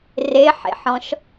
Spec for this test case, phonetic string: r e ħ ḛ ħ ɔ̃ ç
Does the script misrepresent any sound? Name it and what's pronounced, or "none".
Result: ç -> ʃ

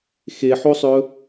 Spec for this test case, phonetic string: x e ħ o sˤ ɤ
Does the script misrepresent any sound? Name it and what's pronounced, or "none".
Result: ɤ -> ɵ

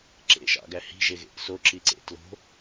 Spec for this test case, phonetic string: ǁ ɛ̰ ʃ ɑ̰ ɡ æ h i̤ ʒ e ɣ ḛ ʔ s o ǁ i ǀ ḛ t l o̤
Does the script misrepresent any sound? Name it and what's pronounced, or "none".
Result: ɛ̰ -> ḛ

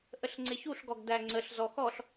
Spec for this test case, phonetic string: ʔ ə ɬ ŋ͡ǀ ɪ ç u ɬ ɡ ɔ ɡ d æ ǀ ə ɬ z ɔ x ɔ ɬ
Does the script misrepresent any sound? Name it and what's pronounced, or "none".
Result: ǀ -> ŋ͡ǀ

